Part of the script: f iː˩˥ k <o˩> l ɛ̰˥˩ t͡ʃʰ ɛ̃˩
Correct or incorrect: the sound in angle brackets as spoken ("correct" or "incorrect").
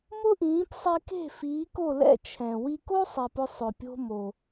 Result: incorrect